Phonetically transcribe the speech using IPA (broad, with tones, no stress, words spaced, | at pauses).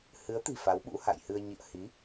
hɨ˨˦ə̯t̪i̤˨˩ fa˨˦wɓṵ˧˥ha̰˧˨jhɨ˧ə̯ ɲḭ˧˨ə̯hi˨˦